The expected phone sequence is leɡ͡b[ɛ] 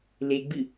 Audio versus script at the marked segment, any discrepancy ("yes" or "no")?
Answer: yes